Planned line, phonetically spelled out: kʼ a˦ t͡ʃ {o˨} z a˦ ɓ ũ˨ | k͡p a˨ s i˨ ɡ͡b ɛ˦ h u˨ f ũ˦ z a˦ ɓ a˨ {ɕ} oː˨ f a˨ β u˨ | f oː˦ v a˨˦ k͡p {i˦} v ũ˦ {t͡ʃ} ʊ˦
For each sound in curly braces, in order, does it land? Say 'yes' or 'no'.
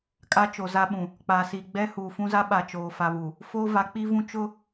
yes, no, yes, yes

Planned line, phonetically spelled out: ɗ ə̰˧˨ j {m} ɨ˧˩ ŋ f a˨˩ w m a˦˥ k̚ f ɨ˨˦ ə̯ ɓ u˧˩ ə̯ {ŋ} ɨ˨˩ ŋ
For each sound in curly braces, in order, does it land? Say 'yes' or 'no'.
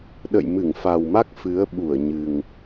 yes, no

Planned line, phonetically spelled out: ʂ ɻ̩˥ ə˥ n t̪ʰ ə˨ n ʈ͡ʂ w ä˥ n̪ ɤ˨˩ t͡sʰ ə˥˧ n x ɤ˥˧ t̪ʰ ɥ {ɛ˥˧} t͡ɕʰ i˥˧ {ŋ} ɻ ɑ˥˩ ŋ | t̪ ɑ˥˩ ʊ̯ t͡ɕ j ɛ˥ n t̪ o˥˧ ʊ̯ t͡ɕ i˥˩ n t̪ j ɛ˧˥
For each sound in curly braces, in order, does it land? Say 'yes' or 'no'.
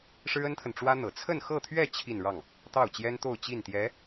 yes, no

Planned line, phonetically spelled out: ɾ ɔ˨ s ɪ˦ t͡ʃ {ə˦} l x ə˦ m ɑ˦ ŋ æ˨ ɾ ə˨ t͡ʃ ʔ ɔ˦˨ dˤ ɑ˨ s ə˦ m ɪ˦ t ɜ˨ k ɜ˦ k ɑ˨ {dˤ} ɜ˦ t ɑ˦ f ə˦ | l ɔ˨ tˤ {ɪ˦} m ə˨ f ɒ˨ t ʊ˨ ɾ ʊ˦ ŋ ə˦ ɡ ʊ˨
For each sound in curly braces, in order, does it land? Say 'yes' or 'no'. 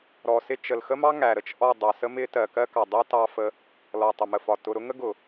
no, yes, no

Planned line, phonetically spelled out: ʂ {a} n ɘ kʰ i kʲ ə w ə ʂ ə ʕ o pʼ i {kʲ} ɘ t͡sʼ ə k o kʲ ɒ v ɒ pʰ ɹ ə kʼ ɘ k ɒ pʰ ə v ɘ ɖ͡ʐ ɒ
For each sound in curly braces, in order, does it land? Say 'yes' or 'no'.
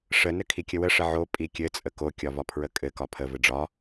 no, yes

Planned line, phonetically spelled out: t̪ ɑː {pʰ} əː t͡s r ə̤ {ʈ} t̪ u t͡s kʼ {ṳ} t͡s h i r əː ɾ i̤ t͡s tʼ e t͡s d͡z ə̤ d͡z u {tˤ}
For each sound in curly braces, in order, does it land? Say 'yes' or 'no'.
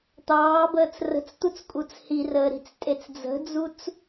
no, no, no, no

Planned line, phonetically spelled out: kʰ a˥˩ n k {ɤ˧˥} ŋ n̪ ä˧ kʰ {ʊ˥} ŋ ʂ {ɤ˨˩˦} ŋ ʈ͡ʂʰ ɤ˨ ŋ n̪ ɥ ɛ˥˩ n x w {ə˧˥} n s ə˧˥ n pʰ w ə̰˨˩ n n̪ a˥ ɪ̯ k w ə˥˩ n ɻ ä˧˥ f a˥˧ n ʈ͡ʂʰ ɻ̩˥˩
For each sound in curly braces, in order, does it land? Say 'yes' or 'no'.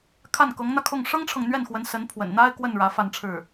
yes, no, no, yes

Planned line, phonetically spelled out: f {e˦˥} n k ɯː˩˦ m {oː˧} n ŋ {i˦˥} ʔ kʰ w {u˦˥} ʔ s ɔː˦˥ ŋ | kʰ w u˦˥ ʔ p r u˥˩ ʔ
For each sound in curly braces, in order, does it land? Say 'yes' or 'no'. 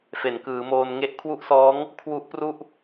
no, yes, no, yes

